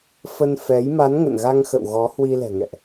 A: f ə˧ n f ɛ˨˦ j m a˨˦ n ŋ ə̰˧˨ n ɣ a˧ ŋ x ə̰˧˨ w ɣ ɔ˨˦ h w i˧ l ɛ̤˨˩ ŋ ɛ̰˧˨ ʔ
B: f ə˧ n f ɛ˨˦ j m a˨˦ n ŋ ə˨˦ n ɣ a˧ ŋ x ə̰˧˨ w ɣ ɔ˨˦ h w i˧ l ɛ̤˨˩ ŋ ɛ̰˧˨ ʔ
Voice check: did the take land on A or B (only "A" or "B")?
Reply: A